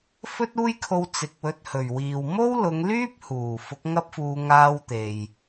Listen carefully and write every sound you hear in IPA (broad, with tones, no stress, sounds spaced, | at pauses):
f ɵ˥ t̚ uː˥ j kʰ o˧ w t͡s ɪ˨ k̚ w ɵ˧ t̚ h ɵ˨˩ ɥ w iː˨ w m o˥ w l ʊ˨˧ ŋ l yː˥ p̚ h uː˨˩ f ʊ˨˥ k̚ ŋ ɐ˥ p̚ f uː˧ ŋ aː˥ w t̪ e˨ j